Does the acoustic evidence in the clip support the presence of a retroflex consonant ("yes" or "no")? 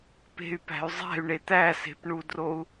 yes